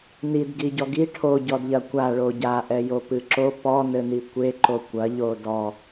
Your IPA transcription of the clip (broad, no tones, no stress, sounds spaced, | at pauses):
n i d ɡ i ɟ ɔ ɡ i ʈʰ o ɟ ɔ d ʎ ɐ kʷ a ɭ o ɟ a ʔ ɛ j o p ɨ ǁ o p ɔ n ɘ n i kʷ e ǃ o kʷ ɐ ʎ o d ɔ